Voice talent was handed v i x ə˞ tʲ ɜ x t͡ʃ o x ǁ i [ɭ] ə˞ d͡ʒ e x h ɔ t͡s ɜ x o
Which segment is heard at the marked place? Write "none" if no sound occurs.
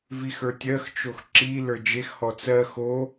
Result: l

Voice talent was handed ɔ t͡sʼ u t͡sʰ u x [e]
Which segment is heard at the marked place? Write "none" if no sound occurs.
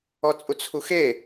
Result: e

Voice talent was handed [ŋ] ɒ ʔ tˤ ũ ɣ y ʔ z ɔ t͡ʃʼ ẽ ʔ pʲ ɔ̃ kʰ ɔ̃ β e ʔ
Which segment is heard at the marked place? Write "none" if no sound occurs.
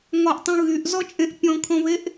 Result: ŋ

